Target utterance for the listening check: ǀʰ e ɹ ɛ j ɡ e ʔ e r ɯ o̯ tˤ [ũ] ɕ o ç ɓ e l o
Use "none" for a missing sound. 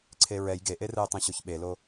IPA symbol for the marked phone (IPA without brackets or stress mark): ũ